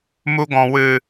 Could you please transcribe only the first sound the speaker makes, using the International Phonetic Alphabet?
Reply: m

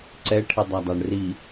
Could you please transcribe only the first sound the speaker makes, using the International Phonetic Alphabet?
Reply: ǀ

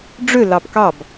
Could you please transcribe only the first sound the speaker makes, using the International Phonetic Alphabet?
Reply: ɖ͡ʐ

